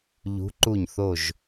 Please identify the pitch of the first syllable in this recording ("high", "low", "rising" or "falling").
rising